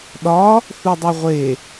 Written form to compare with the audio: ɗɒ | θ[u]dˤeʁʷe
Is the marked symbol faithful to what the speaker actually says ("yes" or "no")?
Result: yes